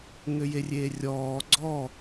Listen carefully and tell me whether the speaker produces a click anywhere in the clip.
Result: yes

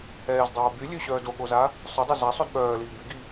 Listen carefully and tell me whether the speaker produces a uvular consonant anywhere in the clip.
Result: no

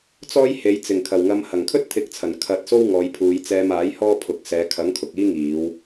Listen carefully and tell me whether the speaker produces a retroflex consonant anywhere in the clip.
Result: no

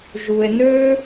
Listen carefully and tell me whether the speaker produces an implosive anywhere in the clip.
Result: no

